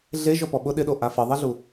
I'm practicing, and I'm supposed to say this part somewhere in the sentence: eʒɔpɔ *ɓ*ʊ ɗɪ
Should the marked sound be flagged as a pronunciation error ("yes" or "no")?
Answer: no